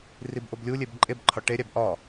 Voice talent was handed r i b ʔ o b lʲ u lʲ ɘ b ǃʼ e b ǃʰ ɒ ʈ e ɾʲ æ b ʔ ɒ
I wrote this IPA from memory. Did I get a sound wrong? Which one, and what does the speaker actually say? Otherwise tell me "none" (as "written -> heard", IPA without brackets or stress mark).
ɘ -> e